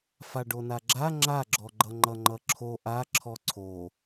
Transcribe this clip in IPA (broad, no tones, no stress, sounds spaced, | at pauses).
f a ɖ o n a ɡ͡ǁ a ŋ͡ǁ a ɡ͡ǁ ɔ ɡ͡ǃ ʌ ŋ͡ǃ ʌ ŋ͡ǃ ʌ ǁʰ o ʔ a ǁʰ ɔ ǀʰ o